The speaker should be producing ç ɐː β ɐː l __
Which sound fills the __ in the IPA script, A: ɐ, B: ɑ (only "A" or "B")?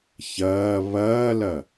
A